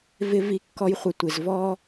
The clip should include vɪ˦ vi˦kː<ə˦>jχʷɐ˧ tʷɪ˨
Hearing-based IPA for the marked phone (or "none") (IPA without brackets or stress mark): ɔ˦